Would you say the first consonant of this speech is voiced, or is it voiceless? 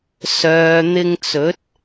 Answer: voiceless